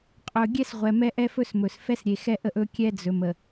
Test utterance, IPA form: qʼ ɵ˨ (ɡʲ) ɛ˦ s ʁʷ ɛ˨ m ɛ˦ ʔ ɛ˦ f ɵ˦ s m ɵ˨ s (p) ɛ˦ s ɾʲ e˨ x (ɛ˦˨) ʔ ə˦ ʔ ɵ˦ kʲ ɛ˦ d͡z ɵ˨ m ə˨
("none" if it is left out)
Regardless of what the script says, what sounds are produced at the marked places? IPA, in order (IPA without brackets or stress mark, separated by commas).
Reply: ɡʲ, f, ɛ˦